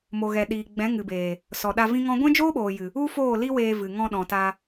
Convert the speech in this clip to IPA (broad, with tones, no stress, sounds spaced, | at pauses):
m o˨ ɣ ɛ˨ ɗ iː˨ ɡ͡b ɛ̃˨˦ ŋ ɨ˨ b eː˨ | s ɔ˨ ɗ a˧ v ĩ˦ ŋ ɔ̃˦ ɡʷ ɛ̃˦ d͡ʒ oː˦ ɓ oː˨ j ɨ˨ | u˦ f oː˦˨ l i˦ w eː˧ v ɨ˨ ŋ ɔ̃˧ ɗ ɔ̃˨ t a˧